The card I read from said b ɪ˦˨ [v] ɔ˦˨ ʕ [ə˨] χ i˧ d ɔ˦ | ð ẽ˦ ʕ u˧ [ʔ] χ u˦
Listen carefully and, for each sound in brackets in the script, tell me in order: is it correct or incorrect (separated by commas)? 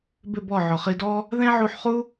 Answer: incorrect, incorrect, incorrect